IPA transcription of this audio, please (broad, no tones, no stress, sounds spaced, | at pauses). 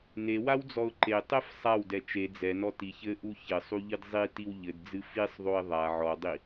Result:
n e w a w d͡z ɔ ʊ̯ ǃ e tˤ ɛ f sˤ a w d ɛ t͡ʃ e d͡z ɛ n ɔ t i ç ɘ ʔ u ç ɘ sˤ u ʎ ɨ d zˤ i t i w ʎ ɘ d d͡z ɨ f i sˤ ðˤ o ɪ̯ ðˤ a ʕ ɔ dˤ i